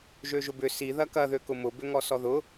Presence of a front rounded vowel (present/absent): present